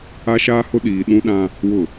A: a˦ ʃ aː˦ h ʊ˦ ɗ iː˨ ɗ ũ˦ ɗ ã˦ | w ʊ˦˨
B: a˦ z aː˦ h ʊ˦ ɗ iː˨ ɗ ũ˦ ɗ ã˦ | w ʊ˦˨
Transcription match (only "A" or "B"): A